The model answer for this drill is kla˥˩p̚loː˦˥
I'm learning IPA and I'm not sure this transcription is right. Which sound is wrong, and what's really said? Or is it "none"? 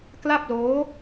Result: none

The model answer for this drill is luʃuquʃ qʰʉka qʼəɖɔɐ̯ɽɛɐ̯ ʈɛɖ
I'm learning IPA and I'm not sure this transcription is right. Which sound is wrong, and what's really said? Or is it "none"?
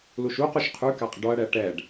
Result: none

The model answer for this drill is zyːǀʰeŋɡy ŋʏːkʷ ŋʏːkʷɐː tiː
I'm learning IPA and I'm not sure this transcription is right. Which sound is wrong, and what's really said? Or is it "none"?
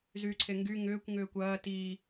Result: none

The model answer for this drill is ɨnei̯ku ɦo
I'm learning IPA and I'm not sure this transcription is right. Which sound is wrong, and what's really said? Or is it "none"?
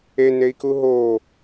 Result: ɨ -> e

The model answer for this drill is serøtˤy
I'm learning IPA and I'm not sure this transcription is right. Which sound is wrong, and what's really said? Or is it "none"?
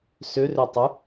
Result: e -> ø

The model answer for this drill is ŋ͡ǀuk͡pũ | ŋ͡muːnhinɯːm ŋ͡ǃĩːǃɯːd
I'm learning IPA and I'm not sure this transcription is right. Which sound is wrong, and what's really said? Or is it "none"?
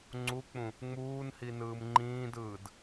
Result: ǃ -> d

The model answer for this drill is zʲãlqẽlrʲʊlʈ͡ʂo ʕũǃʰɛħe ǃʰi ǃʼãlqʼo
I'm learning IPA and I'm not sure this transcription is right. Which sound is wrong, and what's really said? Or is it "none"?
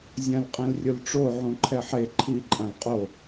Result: q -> qʼ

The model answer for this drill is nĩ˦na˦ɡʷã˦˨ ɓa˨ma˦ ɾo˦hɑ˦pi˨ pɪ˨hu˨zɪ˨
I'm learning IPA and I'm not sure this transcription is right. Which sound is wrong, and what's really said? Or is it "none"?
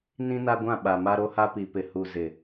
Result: ɑ˦ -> a˦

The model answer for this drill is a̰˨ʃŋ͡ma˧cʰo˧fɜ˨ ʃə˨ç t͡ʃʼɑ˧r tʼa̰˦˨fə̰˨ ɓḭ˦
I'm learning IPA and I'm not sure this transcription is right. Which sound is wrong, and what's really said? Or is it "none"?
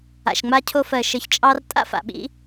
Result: ə̰˨ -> a̰˨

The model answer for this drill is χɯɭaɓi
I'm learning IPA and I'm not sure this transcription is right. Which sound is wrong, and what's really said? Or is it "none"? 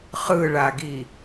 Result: ɓ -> ɡ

